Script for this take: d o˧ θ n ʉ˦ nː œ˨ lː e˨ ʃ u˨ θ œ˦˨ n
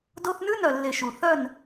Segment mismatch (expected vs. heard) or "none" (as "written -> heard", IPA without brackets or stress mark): nː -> n